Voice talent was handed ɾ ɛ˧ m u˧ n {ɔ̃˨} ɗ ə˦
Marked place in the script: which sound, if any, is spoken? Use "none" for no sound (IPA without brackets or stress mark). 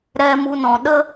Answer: ɔ̃˨